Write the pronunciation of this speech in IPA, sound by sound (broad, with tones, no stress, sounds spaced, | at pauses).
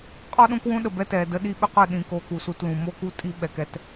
qʼ ɔ˦ ɗ õ˦ k w õ˦ ɗ ə˨ b ɛ˦ t ɛ˨ d ə˦ ɗ i˦ ɓ ø˦ q œ˨ ɗ ĩ˨ k oː˨ k u˨ s u˨ t l ũ˨ m oː˦ k u˦ tʼ i˦ ɓ ɛ˨ k ɛ˦ t